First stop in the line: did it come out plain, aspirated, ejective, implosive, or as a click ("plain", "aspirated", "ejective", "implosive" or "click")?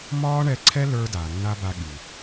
click